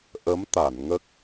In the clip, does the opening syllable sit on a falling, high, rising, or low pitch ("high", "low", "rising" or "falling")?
rising